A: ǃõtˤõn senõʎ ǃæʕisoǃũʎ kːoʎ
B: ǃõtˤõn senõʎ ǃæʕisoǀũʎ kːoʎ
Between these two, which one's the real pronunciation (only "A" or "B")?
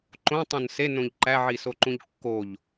A